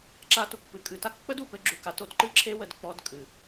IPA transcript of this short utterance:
ǁ a˦ t u˧ k p ɨ˨ kʼ ɨ˧ t a˦ k k͡p ə˦ d u˨ p ɘ˧ ɡ͡ǁ u˨ k a˨˦ t o˦ t ǃ ɨ˦ ǁʰ e˦ w ə˧ d k͡p ɔ˧ d kʼ ɨ˨

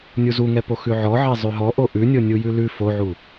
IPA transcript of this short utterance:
nʲ u z u ŋ ɛ p o x ʉ ʕ ɔ ʕ ɛ zˤ ʉ ɦ ɔ ʔ o ʔ ʉ nʲ o nʲ u j ʉ l ʉ f o ʕ u

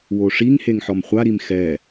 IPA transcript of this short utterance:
w o ʂ i ŋ h e ŋ ħ ɔ m χʷ a ɾ i m x ɛ

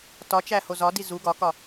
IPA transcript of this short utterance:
t ɒ t͡ʃ æ h o z ɒ d i z u ɡ ɒ k ɒ

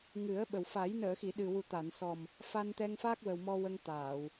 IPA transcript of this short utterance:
ŋ ɨ˨˩˦ ə̯ ɓ ə˨˩ w f a˨˩˦ j n əː˨˩˨ x i˨˩˨ ɗ ɨ˨˩ w u˨˩ t̪ a˨˩˨ n s ɔ˨˩ m | f a˧ n t̪ ɛ˧ ŋ f a˦˥ k̚ w ə˨˩ w m ɔ˧ w ə˧ ŋ t̪ aː˨˩˨ w

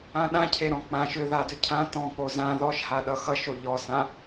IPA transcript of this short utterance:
ã ɗ ã cʰ e ɾ ɔ̃ k͡p ã ʃ ʏ ð a d ʏ cʰ ã t ɔ̃ k͡p o z ã ð ɔ ʃ h a ɗ ʌ x ʌ ʃ o ʎ ɔ s ã

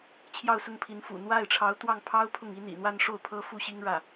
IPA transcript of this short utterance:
t͡ɕʰ j ɑ˥˧ ʊ̯ s ʊ˥˩ ŋ pʰ i˧˥ n f ṵ˨˩ n̪ w a˥˩ ɪ̯ ʈ͡ʂʰ ɑ˧˥ ʊ̯ t̪ w ɑ˥˩ ŋ pʰ ɑ˥ ʊ̯ pʰ ʊ˥˩ ŋ i˥ n̪ ḭ˨˩ n̪ w a˥˧ n ʂ o˥˩ ʊ̯ pʰ ɤ˥ f u˥˩ ɕ i˥ ŋ ɻ ä˥˩

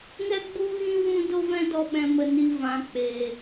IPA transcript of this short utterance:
ŋ ɛ˧ ɡ͡b u˧ ɣ ĩ˧ w ũ˧ d o˦ v ɛ̃˦ d ɔ˧ ɓ ɛ̃˨ m ə˨ n i˨ v ã˨ k͡p eː˨

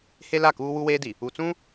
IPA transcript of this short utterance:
h e˦ l a˦˨ k uː˦ w u˦ w eː˦ d i˨ | u˨ t͡s ũ˦

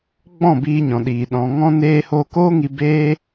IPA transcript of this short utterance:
ɡ͡b ɔ̃˦˨ b iː˧ ɲ ɔ̃˨ ɗ iː˨ ɗ ɔ̃˨ ŋ ɔ̃˧ n eː˧ h oː˧ k oː˦ ŋ i˧ b eː˦

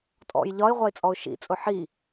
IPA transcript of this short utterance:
tʼ ɔ̰ j ʎ ɒ ɪ̯ ʁʷ ɑ ɪ̯ t͡sʼ ɔ ʊ̯ ʃ ḭ t͡sʼ ʊ ħ i

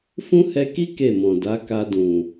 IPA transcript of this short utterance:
f ũ˦ h ɛ˧ k i˦ k e˦˨ m ɔ̃˨ d a˨˦ k a˧ d ũ˨

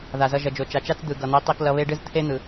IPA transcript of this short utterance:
ð a˨ z ʌ˧ ʒ ʌ˨ d͡ʒ o˨ t͡ʃ a˨ t͡ʃ a˦ t͡s d̪ ɯ˨ ɡ ʌ˨ n̪ i˨˦ tˤ i˧ k l ʌ˧ β e˦ ɖ ɯ˦ z t̪ʰ e˦ n̪ ɯ˨

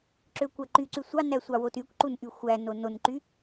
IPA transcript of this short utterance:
ǁ ø kʷ æ ǃ y ǀ y sʷ ɑ n æ sʷ ɑ w o t y kʷ ǃ u n ʔ y xʷ æ n o n o n ǃ y

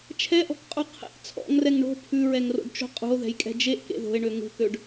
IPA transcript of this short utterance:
t͡ʃʰ ɛ ʔ ɔ̤ k qʼ u qʰ ḛ ʔ t͡sʰ ɔ̰ ŋ r ɛ ŋ ɳ o̤ pʰ ʉ ɹ ɛ ŋ r o̰ ɖ t͡ʃ o̤ qʼ ṳ o̯ ð ɛ̤ j kʼ ɛ̤ d͡ʒ e ʔ k ḛ ð o̤ e̯ ɳ ø ŋ ṳ k ø ɖ

